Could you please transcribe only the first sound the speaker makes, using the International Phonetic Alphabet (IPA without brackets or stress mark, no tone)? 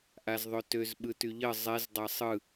ʔ